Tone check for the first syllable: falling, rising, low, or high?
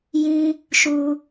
low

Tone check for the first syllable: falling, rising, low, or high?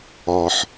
low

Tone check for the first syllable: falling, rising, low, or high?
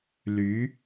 rising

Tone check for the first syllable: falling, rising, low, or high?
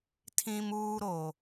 high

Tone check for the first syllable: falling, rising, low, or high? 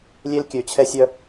high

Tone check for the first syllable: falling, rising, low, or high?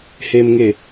low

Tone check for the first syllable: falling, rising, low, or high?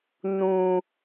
low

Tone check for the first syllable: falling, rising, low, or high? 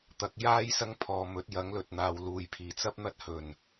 rising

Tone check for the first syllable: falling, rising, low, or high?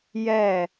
falling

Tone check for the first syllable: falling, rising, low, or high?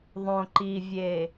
low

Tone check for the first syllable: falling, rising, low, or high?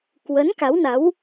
rising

